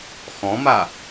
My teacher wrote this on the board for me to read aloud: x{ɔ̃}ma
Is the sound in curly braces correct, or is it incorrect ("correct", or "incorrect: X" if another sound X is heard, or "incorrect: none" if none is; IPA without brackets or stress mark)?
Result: correct